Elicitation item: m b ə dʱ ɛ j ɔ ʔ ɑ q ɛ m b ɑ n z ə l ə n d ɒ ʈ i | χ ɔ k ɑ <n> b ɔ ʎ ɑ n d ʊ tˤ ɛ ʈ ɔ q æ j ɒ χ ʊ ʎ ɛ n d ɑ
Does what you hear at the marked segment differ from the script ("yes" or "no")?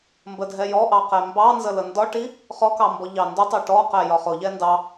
yes